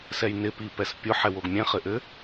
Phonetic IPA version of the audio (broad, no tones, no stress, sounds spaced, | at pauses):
s ɛ j n ɪ p i p ɛ s pʲ ʊ ħ ɛ w o ɡ mʲ ɛ̃ χ ɘ ʔ ɘ